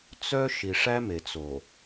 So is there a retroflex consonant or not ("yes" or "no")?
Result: yes